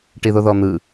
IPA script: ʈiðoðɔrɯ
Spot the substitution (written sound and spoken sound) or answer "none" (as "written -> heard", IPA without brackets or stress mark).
r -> n̪